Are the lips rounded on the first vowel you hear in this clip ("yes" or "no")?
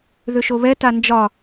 yes